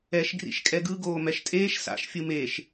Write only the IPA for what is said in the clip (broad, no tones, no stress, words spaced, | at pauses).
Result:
ɛʃ ɡrḭʃkʼɛɡɯ ɡoːmɛʃtʼeːʃ sa̰ʃ fʲɯmeʃ